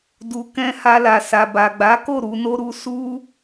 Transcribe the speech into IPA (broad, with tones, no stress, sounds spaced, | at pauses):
d u˨ k ɛ̃˧ h a˧ l a˨ s a˨ b a˨ ɡ͡b a˨˦ k o˦˨ ɾ u˨˦ n o˦ ɾ u˦ s u˦